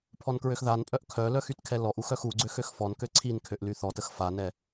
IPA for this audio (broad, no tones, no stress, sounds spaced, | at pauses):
pʰ ɔ n k ɹ ø x ð a n pʼ œ ʔ kʰ œ l œ x y t kʰ ɛ l ɔ ʔ u x œ x u ɡ͡ǀ ø x ø x f ɔ n k ø ǀʰ i n kʰ ø ʔ l y θ ɔ t ə x f a n ɛ